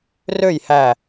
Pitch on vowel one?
falling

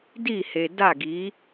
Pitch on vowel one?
falling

